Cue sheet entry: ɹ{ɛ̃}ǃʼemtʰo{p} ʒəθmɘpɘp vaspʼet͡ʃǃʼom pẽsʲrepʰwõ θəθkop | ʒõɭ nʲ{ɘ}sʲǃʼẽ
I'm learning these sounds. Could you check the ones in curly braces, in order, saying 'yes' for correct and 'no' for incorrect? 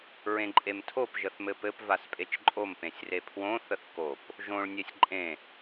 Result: no, yes, no

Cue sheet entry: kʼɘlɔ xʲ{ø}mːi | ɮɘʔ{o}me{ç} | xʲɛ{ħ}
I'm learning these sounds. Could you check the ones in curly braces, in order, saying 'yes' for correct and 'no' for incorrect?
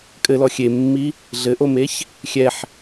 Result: no, yes, yes, yes

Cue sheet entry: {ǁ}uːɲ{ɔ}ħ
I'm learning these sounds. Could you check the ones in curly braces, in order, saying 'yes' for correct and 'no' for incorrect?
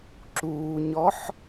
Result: yes, yes

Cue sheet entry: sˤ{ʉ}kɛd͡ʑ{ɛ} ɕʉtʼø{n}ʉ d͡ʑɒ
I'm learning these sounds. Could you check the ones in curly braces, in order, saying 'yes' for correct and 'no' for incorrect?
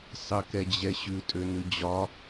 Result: no, yes, yes

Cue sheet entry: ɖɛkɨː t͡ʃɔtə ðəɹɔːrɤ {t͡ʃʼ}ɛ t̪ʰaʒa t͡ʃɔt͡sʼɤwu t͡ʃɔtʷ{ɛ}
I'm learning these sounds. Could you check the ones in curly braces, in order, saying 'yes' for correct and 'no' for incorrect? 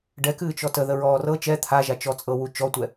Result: no, yes

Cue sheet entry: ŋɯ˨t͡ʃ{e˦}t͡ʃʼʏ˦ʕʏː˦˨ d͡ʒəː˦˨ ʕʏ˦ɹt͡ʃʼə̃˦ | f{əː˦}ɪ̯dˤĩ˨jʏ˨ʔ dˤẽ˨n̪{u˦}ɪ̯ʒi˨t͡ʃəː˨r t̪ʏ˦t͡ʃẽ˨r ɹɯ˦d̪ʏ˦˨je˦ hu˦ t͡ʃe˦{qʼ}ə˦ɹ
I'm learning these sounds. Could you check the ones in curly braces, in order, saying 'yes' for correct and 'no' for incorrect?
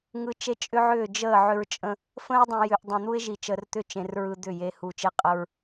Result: yes, no, yes, yes

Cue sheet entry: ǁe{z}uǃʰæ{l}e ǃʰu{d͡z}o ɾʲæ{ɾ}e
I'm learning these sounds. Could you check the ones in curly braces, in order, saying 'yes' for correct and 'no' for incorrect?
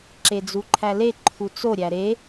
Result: no, yes, no, yes

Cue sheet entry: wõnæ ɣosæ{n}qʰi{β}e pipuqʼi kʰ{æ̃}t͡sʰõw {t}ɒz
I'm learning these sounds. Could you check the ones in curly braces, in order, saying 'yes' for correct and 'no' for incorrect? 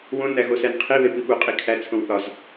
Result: yes, yes, no, no

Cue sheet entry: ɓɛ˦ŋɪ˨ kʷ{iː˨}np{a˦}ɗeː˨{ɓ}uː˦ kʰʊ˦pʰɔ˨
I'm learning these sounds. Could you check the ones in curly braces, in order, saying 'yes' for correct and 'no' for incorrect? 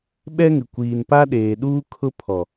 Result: yes, yes, no

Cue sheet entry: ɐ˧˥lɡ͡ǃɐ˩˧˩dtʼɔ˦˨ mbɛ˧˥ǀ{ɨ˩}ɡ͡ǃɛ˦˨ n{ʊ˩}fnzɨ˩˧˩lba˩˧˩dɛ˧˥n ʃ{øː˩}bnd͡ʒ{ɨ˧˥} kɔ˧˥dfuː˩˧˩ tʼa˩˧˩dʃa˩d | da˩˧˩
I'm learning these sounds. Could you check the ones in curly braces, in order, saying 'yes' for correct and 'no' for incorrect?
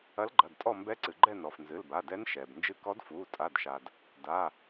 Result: yes, no, no, no

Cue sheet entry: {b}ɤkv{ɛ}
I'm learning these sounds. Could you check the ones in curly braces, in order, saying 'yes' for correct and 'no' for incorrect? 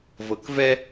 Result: no, yes

